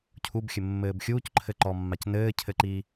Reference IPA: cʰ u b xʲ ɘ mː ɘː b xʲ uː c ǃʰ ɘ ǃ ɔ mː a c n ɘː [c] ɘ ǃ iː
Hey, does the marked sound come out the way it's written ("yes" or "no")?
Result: no